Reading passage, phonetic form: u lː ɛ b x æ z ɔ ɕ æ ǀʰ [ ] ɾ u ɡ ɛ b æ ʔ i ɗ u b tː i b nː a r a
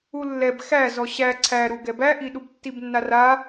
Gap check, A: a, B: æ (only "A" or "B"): B